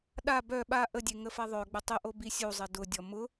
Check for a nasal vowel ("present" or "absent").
absent